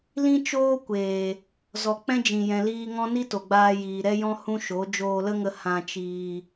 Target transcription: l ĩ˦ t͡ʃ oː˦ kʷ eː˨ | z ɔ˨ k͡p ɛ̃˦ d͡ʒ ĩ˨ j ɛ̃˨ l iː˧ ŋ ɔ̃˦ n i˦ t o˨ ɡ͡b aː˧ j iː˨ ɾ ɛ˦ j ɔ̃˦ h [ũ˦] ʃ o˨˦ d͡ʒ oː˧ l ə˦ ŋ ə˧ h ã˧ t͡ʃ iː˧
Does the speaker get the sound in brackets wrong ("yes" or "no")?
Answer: no